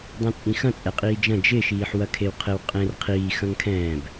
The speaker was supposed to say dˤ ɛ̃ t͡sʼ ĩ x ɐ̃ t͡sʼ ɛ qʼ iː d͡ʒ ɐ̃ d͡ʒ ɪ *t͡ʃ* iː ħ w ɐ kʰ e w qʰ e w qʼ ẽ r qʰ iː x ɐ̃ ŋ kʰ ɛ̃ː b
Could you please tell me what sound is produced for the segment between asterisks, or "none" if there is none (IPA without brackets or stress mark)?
ʃ